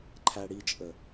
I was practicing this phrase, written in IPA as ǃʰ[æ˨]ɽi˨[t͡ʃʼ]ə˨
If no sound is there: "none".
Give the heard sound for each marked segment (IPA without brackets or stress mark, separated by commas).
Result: æ˨, t͡ʃʼ